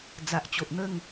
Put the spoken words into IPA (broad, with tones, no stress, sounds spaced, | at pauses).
d͡z a˨ ʔ t͡ɕ o˨ ʔ n̪ ə˥˧ ŋ